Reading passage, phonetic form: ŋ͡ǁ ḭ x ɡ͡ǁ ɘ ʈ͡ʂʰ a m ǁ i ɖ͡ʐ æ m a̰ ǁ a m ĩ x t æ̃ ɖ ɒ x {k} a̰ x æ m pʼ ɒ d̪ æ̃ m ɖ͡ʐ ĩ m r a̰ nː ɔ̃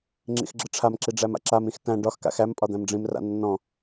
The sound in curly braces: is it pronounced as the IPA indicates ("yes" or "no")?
yes